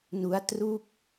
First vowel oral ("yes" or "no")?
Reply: yes